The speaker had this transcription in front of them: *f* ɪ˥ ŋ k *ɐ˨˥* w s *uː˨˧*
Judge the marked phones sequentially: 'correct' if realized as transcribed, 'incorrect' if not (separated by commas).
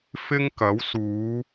correct, correct, correct